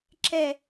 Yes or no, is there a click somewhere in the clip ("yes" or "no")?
yes